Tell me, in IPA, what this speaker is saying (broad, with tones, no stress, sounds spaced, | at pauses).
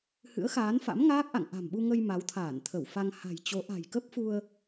h ɨ̰˧˥ ə̯ x aː˨˦ n f a̰˧˥ m ŋ aː˦˥ k̚ ʔ a̰˧˨ ŋ ʔ a̤˨˩ m ɓ u˧ ŋ ə˧ j m a˨˦ w t̪ʰ aː˧˩ n t̪ʰ ə˧˩ w f a˧ ŋ h a̤˨˩ j t͡ɕ o˨˦ ʔ a̤˨˩ j k ə˦˥ p̚ f u˧ ə̯